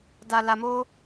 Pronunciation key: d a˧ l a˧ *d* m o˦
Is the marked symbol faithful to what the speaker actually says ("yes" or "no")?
no